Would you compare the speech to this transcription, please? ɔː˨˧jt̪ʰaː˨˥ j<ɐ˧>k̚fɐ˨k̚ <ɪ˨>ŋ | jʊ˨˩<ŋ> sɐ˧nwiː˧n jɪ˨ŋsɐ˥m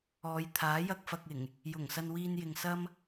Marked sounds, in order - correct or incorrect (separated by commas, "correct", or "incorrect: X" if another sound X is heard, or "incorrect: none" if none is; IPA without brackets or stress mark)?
correct, incorrect: ɪ˨˩, correct